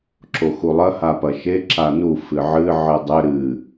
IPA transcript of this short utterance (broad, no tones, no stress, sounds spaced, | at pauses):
ǁ o x u lˠ ɐ h a p ɐ ʃ e ǁ a n u f ɨ ʕ ɨ ʕ ɨ dˤ ɘ ɾ ɨ